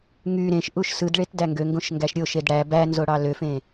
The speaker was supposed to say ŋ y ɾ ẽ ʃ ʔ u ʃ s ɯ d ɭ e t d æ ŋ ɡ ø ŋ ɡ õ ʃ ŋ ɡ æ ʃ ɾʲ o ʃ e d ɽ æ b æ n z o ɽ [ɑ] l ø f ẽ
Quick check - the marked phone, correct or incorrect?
correct